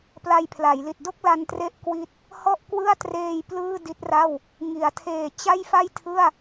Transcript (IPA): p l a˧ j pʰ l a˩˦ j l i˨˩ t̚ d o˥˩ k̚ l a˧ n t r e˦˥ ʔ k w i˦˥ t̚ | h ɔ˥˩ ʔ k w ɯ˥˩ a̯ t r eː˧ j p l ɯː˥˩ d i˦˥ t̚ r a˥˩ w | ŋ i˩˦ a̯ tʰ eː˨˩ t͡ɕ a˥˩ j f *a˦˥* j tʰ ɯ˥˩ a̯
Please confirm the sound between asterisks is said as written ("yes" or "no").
no